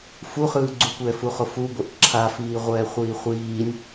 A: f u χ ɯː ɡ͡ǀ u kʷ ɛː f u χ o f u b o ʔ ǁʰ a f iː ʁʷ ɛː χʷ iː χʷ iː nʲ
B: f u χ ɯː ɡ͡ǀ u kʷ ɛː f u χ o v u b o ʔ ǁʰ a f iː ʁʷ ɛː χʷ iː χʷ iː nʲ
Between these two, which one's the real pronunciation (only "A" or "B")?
A